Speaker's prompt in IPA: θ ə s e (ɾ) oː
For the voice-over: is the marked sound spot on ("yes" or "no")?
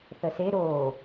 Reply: yes